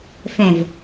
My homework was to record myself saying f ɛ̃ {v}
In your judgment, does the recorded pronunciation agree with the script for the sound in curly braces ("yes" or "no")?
yes